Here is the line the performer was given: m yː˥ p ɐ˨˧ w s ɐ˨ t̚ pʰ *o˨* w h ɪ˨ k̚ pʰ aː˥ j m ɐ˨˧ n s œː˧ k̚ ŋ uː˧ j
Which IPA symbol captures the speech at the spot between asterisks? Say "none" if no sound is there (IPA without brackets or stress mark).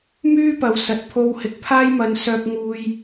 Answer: o˧